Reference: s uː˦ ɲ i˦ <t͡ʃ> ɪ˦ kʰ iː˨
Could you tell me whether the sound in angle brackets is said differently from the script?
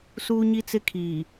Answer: yes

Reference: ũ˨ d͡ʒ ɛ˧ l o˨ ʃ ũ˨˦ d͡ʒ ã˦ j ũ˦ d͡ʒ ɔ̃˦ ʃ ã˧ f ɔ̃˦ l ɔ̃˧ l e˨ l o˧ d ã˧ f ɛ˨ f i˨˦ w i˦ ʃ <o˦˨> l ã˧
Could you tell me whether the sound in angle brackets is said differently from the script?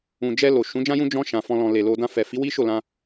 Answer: no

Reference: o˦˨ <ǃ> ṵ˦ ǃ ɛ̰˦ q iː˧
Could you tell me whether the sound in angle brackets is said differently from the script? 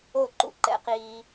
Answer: no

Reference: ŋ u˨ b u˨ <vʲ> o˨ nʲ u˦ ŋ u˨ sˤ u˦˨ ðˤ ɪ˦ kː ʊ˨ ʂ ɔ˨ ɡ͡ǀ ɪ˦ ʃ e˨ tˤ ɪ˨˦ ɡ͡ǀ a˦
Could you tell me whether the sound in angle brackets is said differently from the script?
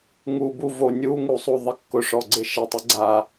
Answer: yes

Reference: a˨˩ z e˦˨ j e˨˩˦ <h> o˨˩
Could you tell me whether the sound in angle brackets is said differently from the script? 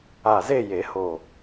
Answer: no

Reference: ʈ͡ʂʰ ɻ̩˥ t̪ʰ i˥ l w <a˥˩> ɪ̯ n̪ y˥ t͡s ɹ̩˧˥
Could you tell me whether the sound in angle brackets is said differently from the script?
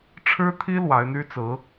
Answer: yes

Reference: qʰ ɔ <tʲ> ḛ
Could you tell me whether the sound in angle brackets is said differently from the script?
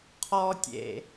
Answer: no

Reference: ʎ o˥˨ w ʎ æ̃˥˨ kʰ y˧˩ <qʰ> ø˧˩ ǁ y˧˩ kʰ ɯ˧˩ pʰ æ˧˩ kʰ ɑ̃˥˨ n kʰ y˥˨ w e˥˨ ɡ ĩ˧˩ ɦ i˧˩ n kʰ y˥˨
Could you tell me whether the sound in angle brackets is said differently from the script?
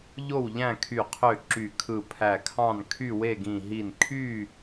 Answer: no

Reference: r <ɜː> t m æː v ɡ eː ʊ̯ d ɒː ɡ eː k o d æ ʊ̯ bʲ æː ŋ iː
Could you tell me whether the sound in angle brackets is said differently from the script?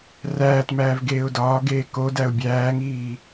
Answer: yes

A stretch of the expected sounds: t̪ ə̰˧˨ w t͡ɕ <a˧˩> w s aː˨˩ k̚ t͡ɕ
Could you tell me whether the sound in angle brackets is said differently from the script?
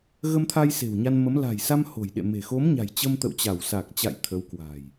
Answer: no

